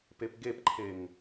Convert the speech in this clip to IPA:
pepɡepǃʰeŋ

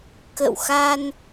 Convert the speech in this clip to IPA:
kə̰˧˨wxa˧n

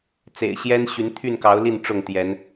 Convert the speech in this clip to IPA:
t͡sḛ˨˩ɪ̯ɕjɛ˦nɕy˨˦n t̪ʰy˥˨nkɑ˨˦ʊ̯li˥˨n ʈ͡ʂʊ˥˨ŋt̪jɛ˨˦n

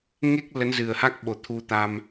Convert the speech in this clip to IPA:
ŋe˦˥k̚ lə˨˦nzɨ˨˩ə̯ha˦˥k̚ɓo˨˩ t̪ʰu˧t̪a˧m

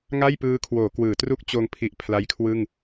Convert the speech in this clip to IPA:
ŋa˥˩j pɯː˧kʰwoː˩˦ kwɯː˩˦tru˥˩k̚ t͡ɕoː˧ŋpʰi˨˩ʔ pʰla˦˥jkʰwɯ˥˩ŋ

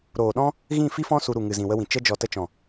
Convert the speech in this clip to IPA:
ɾoː˨ɗɔ̃˦ | ɣĩ˦˨fi˦fɔ̃˦ su˧ɾu˨ ŋɨ˨zĩ˨wə˧wĩ˨ t͡ʃə˧d͡ʒɔ˨ tə˧t͡ʃɔ̃˨

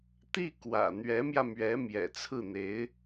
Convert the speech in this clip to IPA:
t̪i˥˩ kwä̰˨˩ n̪ɥɛ˧˥mjä˧mɥɛ˧˥ mjɛ̰˨˩t͡sʰɹ̩˥˩n̪e˧˥ɪ̯

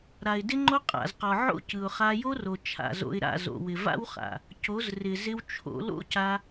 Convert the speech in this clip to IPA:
ɾa˨ɪ̯dɪ˦ŋ͡ǃo˦ qʼa̰˨zqɔ˨ʕo̰˦cɯ˨ʊ̯ χa˧jo˦ro˨ t͡ʃʰa̰˨zo̰˧ɪ̯ɾa̰˦˨zo̰˨ wɪ˨va̰˦wχa̰˨ | co˨˦zrɪ˨ zɪ˦wt͡ʃʰo̰˨˦ lo̰˦ca˧

